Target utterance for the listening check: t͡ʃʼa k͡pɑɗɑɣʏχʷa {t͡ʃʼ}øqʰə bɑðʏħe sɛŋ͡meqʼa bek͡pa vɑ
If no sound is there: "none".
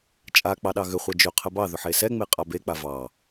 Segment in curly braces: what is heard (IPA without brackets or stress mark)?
d͡ʒ